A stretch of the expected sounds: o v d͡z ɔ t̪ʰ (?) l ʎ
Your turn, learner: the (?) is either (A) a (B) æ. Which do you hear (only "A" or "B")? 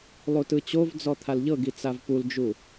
A